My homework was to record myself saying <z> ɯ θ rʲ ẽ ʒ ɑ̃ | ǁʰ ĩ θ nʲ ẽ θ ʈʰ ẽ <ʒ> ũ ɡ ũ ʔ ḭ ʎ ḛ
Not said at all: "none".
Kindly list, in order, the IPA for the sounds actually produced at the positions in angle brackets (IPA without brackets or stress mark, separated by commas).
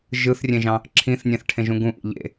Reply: ʒ, ʒ